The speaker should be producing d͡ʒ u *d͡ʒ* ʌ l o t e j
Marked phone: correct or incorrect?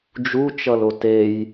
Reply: incorrect